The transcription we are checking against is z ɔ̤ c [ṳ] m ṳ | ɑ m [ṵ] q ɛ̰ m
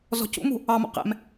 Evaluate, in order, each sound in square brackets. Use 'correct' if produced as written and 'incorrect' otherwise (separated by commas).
incorrect, incorrect